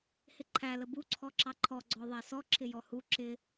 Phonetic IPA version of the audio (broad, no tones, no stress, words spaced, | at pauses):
hɪǃʰæ ləbu ǀʰɔǁɑǃʰɔ ɡ͡ǀɔðˤæsɔ ǁʰɪjɔhu ǁɪ